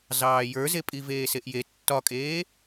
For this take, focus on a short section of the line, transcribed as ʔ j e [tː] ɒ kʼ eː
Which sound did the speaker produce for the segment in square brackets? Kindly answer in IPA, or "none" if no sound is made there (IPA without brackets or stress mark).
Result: tː